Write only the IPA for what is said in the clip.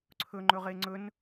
ǀʰ ɵ ŋ͡ǃ ɵ ʁ e ŋ͡ǀ ɵ n

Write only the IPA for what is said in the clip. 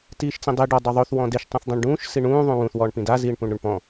t iː ʃ t͡s ĩ dˤ i ɖ ɔ dˤ o ðˤ o θ w ɔ̃ d e ʃ tˤ ũ θ dˤ ĩ ɳ ɖ ũː ʃ s i ɳ ũː ðˤ ũ w ũ θ w ɔː ɳ p ĩ d a z iː ɳ p ũ ɳ ɾ ʉ ɳ p ɔ̃

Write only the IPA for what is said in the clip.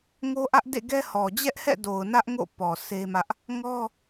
ŋ o˦ ʔ ä˦ ʔ d ḛ˦˨ ɡ ɛ˦ h ɔ˨ d͡ʑ ɛ˦ ʔ h ɛ̰˦˨ d o˨ ʊ̯ n ä˦ ʔ ŋ o̰˦˨ p ɔ˨ s e˦ m ä˦ ʔ | ŋ ɔ˦

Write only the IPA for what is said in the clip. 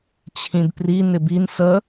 t͡ɕʰ ĩ d p r i n ɪ b i n s ə

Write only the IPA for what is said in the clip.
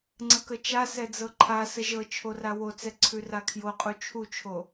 ŋ͡ǀ ə k ə t͡ʃ a s ɛ d͡z ɤ ǃʰ a s ə ʒ ɤ t͡ʃʰ o r a w o t͡s ɛ ǀʰ ʉ r a kʰ j o qʼ u t͡ʃʰ u t͡ʃʰ o

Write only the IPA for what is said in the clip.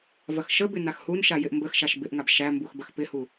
v ɐ x ʃ ə b ɪ n a x h u n ʃ a j ɪ ʔ m b ə x ʃ a ʃ b ɪ ʔ ŋ a b ʃ æ m b u x b ɐ x p ɪ h u

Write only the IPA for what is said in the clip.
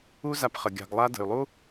u˦ z a˧ p χ ə˨ ɡʲ a̤˨ ɡ lˠ a˧ d ə̤˨ y̯ lˠ u˦

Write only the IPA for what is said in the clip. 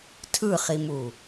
tʰ ɯ χ i m u

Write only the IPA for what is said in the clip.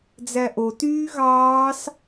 d͡z æ ʔ o t yː ɣ ɑː s

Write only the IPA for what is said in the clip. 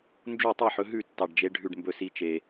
n d͡ʒ u˥˩ tˤ i˥˩ ħ ɵ˨˦ ɦ ʉ˥˩ tː ɑ˨ ɖ d͡ʒ e˨˦ ɖʱ ʉ˨ ɖ m b ɵ˨ s i˨˦ t͡ʃ e˨

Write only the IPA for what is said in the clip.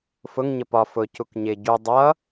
f ʊ ŋ ɲ ə p ɒ f ʊ c u k ɲ ɪ ɟ u dˤ ʌ

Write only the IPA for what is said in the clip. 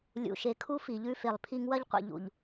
lʲ ṵ˨ ʃ e˨ kʰ u˦ f i˨ ʎ ʉ˦ f e˨ lˠ pʰ i˦ ŋ w ɐ˦ ʎ qʷ ḭ˨ ʎ ṵ˨ ʎ

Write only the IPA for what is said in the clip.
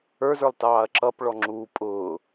ə˞ z ə˞ lˠ t ɑː ɐ̯ ǁ ʌ p ɭ ɔ ŋ͡ǁ uː pʼ ʊː

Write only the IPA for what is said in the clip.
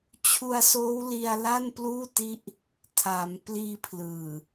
t͡ɕʰ u˧ a̯ s oː˦˥ w l i˧ a̯ l a˥˩ n p l uː˥˩ t i˦˥ ʔ | tʰ a˩˦ m p l iː˧ pʰ l ɯː˨˩

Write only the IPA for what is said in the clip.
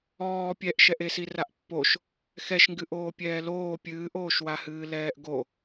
ɔː pʲ ɛ ʔ ʃ ɛ ʔ e s i r a ʔ pː o ʃ | x ɛ ʃ ŋ ɡ ɨ ʔ oː pʲ ɛː l oː pʲ ɨː ʔ oː ʃ w a h ɨː l ɛː ʔ ɡ o

